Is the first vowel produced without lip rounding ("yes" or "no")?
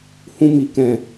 no